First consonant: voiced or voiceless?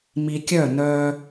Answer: voiced